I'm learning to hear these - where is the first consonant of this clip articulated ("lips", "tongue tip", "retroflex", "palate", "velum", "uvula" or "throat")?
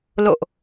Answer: tongue tip